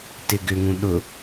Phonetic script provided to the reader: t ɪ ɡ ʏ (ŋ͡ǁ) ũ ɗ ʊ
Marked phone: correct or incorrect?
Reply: incorrect: ŋ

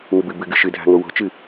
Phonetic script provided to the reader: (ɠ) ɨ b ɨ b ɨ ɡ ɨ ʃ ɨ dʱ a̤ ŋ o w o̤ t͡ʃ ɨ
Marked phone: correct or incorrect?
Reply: incorrect: ŋ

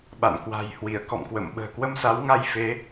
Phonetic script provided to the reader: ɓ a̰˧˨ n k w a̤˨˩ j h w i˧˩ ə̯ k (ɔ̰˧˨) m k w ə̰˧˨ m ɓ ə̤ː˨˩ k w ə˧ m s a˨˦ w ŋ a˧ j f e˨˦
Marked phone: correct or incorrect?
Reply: correct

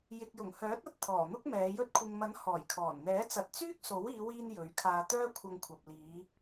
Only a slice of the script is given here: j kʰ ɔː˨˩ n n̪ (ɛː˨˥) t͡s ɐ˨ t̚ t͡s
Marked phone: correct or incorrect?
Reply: correct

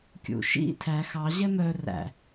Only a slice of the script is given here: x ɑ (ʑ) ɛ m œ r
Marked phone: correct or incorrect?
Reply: correct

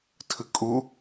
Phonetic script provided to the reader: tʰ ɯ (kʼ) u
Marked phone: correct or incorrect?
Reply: correct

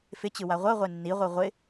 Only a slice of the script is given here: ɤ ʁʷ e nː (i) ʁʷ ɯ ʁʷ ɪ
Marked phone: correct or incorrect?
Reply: correct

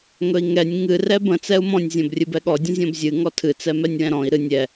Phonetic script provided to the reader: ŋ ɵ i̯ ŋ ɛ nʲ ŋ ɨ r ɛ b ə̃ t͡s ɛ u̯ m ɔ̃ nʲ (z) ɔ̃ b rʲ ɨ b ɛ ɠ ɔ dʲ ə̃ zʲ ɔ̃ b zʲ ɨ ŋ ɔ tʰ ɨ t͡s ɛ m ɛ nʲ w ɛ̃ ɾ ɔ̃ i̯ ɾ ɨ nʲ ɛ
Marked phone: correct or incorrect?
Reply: incorrect: zʲ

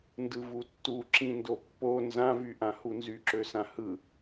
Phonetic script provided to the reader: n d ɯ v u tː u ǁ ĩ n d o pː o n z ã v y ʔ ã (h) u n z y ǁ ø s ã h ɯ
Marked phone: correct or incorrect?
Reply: correct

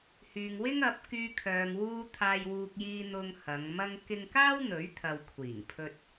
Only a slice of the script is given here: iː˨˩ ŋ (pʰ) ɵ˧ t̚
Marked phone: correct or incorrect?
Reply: correct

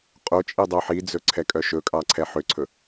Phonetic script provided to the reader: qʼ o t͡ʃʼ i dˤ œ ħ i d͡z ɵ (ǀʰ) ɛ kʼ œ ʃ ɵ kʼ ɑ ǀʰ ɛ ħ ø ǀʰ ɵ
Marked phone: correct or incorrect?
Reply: correct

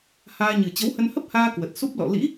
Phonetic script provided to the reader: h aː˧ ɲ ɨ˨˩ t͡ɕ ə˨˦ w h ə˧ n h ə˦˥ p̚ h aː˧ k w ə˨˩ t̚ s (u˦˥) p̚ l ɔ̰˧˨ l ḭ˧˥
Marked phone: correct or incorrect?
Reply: correct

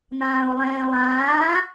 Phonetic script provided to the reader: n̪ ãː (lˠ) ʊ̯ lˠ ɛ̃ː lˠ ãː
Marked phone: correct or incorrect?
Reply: incorrect: none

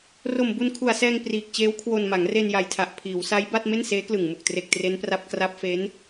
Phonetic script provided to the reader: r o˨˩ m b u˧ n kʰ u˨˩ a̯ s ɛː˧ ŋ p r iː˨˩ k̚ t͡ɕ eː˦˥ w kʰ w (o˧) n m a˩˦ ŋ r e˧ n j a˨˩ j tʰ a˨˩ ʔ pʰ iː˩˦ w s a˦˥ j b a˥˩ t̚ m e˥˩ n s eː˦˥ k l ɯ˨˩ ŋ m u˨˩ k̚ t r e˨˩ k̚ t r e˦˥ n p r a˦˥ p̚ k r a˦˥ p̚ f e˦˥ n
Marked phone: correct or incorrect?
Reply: correct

